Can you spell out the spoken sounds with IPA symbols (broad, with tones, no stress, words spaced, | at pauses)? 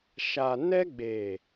ʃa˨nɛ˦ɡ͡be˨